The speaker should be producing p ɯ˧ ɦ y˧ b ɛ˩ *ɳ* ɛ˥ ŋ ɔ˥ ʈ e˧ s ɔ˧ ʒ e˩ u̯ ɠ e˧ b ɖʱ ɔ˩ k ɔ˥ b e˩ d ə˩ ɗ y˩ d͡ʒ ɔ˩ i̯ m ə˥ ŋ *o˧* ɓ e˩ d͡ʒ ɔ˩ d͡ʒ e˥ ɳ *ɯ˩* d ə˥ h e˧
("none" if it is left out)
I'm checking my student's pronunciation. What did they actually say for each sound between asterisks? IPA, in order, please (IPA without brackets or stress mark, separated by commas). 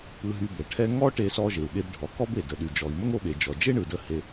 ʈʰ, o˧, ɯ˩